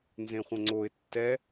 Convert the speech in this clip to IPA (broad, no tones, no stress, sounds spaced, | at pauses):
n z ẽ χʷ ə̃ ŋ͡ǀ o ɪ̯ tː ɛ